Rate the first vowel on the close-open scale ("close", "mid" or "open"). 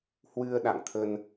close